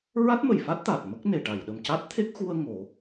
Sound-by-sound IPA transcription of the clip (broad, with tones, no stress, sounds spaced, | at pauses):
ɹ a˦˥ t̚ m ə˨˩˨ j f a˦˥ t̚ t̪ a˨˩ t̚ m ə˦˥ k̚ n e˨˩ ʈ a˨˩˨ j ɗ ə˨˩ m c a˦˥ t̚ t̪ʰ e˦˥ k̚ x u˧ ə̯ ŋ o˨˩˦